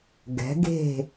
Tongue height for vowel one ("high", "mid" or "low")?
mid